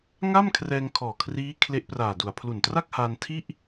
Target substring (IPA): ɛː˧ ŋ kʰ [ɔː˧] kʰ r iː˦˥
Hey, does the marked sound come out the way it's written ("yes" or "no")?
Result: no